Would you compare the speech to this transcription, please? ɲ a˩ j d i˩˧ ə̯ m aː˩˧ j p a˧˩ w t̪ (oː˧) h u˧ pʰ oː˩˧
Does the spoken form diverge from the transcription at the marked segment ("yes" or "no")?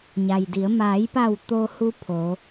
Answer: no